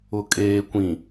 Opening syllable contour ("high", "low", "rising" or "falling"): low